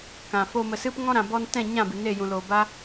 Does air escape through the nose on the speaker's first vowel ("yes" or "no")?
yes